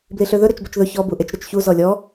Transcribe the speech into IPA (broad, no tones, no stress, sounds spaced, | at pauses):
b l i ɬ ø ð ɵ ɾ ø t͡ʃ b œ t͡ʃ ð ɵ ç ɔ b u ʔ e t͡ʃ ɾ ɵ t͡ʃ ç u z ɔ lʲ ɔ